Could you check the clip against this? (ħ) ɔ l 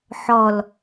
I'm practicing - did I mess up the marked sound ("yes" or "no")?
no